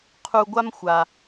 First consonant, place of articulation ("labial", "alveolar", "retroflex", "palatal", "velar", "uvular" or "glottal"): uvular